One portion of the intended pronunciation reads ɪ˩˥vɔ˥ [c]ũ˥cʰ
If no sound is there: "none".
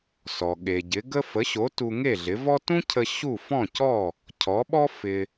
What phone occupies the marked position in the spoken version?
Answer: t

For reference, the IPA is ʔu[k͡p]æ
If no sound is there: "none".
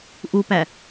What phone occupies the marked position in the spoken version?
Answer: p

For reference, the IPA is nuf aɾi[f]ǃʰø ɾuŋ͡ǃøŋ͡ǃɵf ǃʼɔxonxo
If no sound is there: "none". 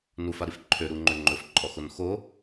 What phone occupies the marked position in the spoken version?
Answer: f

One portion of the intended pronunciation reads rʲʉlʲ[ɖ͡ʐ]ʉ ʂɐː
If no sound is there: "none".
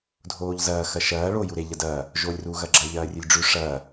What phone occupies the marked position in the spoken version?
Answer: ɖ͡ʐ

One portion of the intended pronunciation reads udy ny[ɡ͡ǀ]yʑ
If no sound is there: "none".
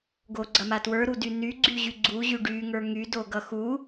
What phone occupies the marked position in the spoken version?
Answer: ɡ͡ǀ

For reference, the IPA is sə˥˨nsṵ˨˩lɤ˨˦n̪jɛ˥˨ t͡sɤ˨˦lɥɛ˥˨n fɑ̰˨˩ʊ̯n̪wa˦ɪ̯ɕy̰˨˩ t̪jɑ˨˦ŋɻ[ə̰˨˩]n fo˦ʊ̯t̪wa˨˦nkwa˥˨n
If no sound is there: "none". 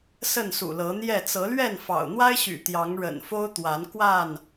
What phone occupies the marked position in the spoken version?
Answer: ə̰˨˩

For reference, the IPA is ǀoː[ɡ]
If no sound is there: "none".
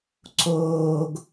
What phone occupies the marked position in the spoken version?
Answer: ɡ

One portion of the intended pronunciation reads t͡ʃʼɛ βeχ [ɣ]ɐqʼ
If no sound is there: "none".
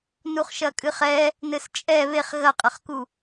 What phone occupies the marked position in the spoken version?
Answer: ɣ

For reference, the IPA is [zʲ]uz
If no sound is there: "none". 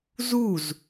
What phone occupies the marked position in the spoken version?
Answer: z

